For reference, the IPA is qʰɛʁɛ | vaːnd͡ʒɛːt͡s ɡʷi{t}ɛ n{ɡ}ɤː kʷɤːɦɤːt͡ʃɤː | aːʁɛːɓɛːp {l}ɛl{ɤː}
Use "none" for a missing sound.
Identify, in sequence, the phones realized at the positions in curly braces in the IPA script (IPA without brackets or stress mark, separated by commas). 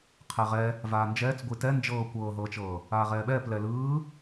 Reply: t, d͡ʒ, l, ɯː